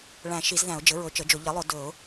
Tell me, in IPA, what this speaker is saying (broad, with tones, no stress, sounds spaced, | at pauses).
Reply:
ɭ æ̃˨˩˦ ʃ i˨˩˦ z ð æ̃˨˩˦ ʊ̯ d͡ʒ ɘ˩˥ ɹ ɵ˨˩˦ t͡ʃ ə˩˥ d͡ʒ ʊ˨˩˦ ʎ ɘ˩˥ lˠ ʊ˨˩˦ d ɵ˨˩˦ ʊ̯